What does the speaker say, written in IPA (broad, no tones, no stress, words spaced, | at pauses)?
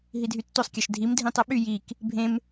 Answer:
ɦidʱytːosˤkʲɑʃ dʱim dʱĩtˤɯɓy jik | bʱẽm